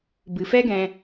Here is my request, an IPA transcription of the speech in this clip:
b ɨ˨ f ɛ˦ ɡ ɛ̃˧

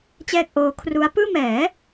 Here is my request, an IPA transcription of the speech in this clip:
t͡ɕ ɛː˥˩ k̚ ʔ oː˦˥ kʰ r u˦˥ a̯ p ɯː˥˩ m ɛː˩˦

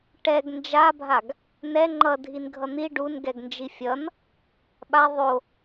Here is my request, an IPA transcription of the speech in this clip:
ʈ ɛ ɡ n d͡ʒ a bʱ a ɡ | n ɛ ŋ͡ǃ ʌ dʱ i n ɡʱ ʌ n̪ i ɖ u n ɡ ɛ ɡ n d͡ʒ i fʲ ʌ n | ɓ a ðˤ o

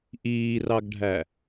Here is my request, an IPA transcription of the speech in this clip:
ʔ iː r ɑ ɡ ɖʱ æ

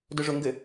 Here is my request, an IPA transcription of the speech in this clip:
d ʊ ʐ ʊ ŋ ɡ ɘ

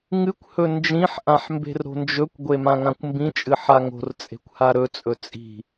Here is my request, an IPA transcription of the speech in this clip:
ŋ ɨ kʷ h ɵ n d͡ʒ ĩ ħ ʔ ã ħ m b e̤ r ɾ o̤ n d͡ʒ ɵ kʷ ɡʷ e m ã ŋ ã kʷ m b ĩ t͡ʃʼ ɨ ħ a ŋ o̤ r t͡sʼ e̤ kʷ h a ɾ ɵ t͡sʼ ɵ t͡sʼ i̤

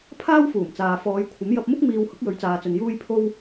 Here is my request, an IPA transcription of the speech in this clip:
pʰ aː˥ w f uː˨˩ m t͡s aː˨ f ɔː˨˧ j kʷʰ ɐ˨˥ m j ɐ˧ p̚ m ʊ˥ k̚ m iː˧ w h ʊ˨˥ k̚ j ɵ˨˥ ɥ t͡s aː˨ t͡s ɵ˨ n j uː˧ j pʰ o˧ w

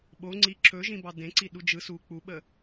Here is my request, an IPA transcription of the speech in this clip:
ɓ o ŋ͡ǀ i ǁ ɵ ʒ ĩ b ɑ d ẽ ǀ i ɗ u d͡ʒ ɯ s u k͡p u ɓ ə

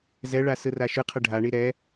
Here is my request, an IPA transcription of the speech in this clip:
z ɛ ɭ a s ɯ r a ʃ ɯ qʰ ʌ ɖʱ a ɳ i ɾ ɛ

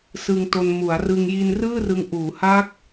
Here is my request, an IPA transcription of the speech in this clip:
s ɯ˧ ŋ t o˧ n m u˩˦ a̯ r ɯ˧ ŋ j i˧ n r ɯː˥˩ r ɯ˧ ŋ ʔ uː˩˦ h a˦˥ k̚

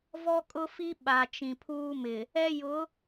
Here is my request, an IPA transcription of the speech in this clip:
v ɔ˦ kʼ ʊ˦ f i˦ ɓ a˨ t͡ʃ ĩ˨ pʰ uː˦ m ɪ˨ | ɛ˦ j ʊ˨˦

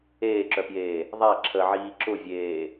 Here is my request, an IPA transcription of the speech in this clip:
eː ǁ œ p j eː | ðˤ a ǁʰ ə ʕ iː ǁ ʊ vʲ eː

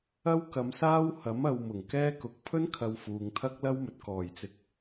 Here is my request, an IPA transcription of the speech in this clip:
ɐ˥ w k ɐ˨˧ m s aː˥ w h ɐ˨˥ m ɐ˧ w m ʊ˨˩ ŋ k ɛː˥ k ʊ˨˥ k̚ pʰ ɵ˥ n kʰ ɐ˨ w f uː˨ ŋ t̪ʰ ɐ˥ k̚ l ɐ˥ w m ɵ˨ t̚ k ɔː˨˩ j t͡s ɪ˨ k̚

